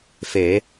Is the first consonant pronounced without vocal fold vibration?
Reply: yes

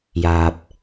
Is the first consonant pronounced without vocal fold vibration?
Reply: no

